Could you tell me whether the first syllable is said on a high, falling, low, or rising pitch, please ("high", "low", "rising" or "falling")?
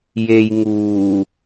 low